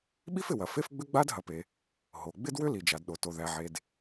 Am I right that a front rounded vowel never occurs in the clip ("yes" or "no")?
no